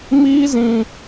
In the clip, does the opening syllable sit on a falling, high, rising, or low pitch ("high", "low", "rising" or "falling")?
high